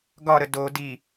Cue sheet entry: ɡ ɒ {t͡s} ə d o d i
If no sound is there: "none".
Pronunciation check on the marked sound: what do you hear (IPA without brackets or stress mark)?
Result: ɾ